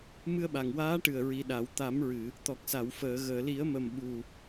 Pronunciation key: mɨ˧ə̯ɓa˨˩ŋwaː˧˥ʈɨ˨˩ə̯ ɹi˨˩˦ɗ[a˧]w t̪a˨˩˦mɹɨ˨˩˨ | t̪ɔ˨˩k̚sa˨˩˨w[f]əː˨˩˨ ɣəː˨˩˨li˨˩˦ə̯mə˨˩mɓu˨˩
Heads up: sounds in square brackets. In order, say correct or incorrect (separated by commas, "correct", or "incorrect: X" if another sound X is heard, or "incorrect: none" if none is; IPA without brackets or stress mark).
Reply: incorrect: a˨˩˦, correct